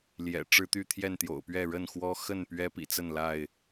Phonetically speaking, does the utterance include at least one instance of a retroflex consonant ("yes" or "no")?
yes